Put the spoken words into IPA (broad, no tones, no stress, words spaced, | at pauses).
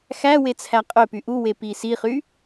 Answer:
xæwe t͡sʰæqʼøpy ʔuwe pisiχy